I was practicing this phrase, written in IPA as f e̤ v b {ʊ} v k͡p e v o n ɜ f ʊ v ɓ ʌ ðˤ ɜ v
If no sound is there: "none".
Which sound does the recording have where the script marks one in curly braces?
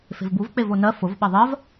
u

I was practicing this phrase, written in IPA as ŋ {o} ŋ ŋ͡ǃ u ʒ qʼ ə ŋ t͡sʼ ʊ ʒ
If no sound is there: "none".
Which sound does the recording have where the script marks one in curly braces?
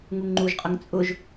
u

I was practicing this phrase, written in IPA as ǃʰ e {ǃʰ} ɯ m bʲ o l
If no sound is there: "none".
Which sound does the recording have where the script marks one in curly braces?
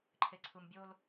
ǀʰ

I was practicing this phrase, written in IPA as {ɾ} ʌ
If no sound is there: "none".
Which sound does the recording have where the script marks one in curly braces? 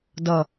d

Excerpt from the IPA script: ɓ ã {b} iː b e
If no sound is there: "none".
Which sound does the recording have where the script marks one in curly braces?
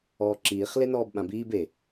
b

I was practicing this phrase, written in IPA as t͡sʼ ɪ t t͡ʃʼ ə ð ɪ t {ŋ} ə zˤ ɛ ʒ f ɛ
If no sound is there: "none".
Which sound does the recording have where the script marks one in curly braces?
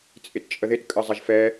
kʼ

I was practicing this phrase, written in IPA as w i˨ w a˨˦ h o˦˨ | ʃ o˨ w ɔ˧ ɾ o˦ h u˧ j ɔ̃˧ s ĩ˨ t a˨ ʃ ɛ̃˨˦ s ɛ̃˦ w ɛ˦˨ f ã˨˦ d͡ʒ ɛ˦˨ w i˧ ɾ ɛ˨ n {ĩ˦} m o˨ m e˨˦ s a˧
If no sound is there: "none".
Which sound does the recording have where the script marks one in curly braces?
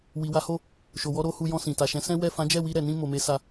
ĩ˧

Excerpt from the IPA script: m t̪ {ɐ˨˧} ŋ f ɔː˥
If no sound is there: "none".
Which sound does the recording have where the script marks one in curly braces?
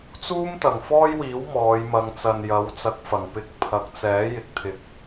ɐ˨˩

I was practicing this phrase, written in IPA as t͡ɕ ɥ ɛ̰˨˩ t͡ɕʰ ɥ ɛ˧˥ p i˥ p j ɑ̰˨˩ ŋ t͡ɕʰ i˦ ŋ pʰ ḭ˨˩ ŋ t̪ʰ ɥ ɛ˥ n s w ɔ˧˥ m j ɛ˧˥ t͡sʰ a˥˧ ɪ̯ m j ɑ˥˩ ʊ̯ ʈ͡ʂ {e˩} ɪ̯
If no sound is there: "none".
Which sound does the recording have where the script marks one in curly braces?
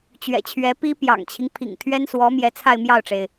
e˩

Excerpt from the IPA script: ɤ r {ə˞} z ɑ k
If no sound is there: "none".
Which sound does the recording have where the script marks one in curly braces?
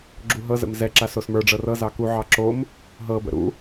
ɤ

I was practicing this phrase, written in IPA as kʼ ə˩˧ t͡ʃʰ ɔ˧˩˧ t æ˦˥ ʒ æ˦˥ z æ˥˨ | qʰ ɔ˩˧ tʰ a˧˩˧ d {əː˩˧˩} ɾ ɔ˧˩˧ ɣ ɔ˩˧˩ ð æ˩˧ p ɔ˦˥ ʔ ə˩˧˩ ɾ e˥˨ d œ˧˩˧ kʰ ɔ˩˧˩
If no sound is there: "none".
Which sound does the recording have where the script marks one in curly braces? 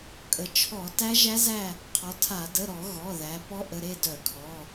ə˩˧˩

